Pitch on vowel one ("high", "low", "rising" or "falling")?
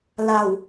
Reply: low